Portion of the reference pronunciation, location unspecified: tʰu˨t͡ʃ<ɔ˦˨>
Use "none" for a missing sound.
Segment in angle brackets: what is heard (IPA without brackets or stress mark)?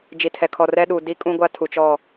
ɔ˦˨